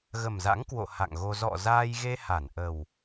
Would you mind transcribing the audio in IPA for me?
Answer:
ɣ ə˨˩ m z a̰˧˥ ŋ k w o̰˧˨ h a̰˧˨ ŋ ɣ o˧ z ɔ̰˧˨ z aː˧ j ɣ e˧ h a˧˩ n ʔ ə˨˩ w

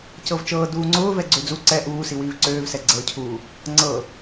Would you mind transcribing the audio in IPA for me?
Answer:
c ɤ v t͡ʃ ɤː d uː ŋ͡ǀ ʊː v ɛ ɡ͡ǀ ø d͡z u ǀ ɛ ʔ uː s i w iː v ǀ øː v s ɛ ɡ͡ǀ ɤ cʰ uː | ŋ͡ǀ ɤ

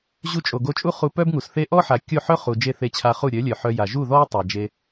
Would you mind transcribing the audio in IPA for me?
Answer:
ʑ u˧ t͡ʃʼ o˨ ɡ o˧ t͡ʃʼ u˦ χ u˧ p œ˦ b ŋ u˨ s θ e˧ ʔ ɔ˦ ħ a˨ kʲ o˦˨ ħ œ˦ χ u˨ d͡ʒ e˦˨ θ e˧ t͡ɕʰ a˧ χ u˦˨ ɾʲ œ˨˦ lʲ œ˨ ħ œ˧ j a˨ ʒ u˦˨ ð ɔ˦ j tˤ a˨ d͡ʒ e˧

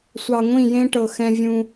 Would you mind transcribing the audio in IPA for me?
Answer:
sʷ ɑ˨ ŋʷ ĩ˦˨ j ẽ˦ ʈ ɤ˨ x ɛ̃˦ vʲ ũ˦

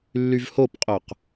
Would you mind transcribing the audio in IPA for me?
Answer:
lː y v h o p qʼ œ q

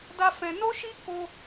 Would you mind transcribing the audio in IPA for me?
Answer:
d a˧ f ɛ̃˧ n o˦ ʃ i˦ k o˦

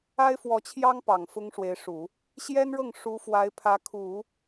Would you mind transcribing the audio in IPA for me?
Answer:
a˥ ɪ̯ f w ɔ˧˥ t͡ɕʰ j ɑ˥ ŋ p ɑ˨˩ ŋ f ʊ˥ ŋ ʂ w e˧˥ ɪ̯ ʂ u˨˩˦ | ɕ j ɛ˥ n ɻ ɤ˥˩ ŋ ʂ u˧˥ f w a˧˥ ɪ̯ pʰ ä˧˥ kʰ u˨˩˦

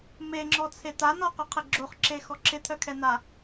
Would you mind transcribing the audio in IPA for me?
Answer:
m e ŋ͡ǁ ɔ t͡sʰ e t̪ a n ɔ q œ qʰ ɪ ɡ͡ǁ o χ ǁ e x ɔ ǁʰ ɪ t̪ʰ œ kʰ ɛ n̪ a

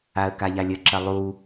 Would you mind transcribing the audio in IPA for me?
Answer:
a ə̯ k a ʎ a lʲ ə ǁ ɐ lˠ u

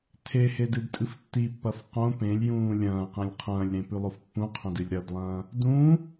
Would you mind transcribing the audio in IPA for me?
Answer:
tʰ e h e d ɨ d tʼ ɨ f tː i pː ɐ f q õ p ẽ lʲ j ũː lʲ ɐ̃ː q ẽ lʲ qʰ ɐ̃ː lʲ ɾ ẽ p ʉ lˠ o f pː ũ qʰ ɐ̃ d ɨ lʲ ɾ ɐ d lˠ ɐ̃ː | d ũː

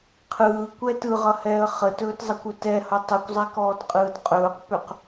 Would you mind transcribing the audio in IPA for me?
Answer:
qʰ ɯː kʷ ɛ t ɯ ʁ ʌ h ɛː ə̯ χ ə t ɵː t zˤ ʌ kʷ ɵ t ɛ h ʌ tˤ ɯ kʷ zˤ ɛ k ɔː t qʼ ɯː d qʼ ɵː q p ʏ q

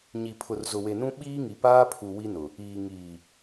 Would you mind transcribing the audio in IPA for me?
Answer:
ɲ i˨ pʰ ʊ˨ r z ʊ˨ w e˨ n ũ˦ ɓ iː˦ ŋ i˨ p aː˦ pʰ u˨ w i˦ n ʊ˨ | iː˨ ŋ iː˨

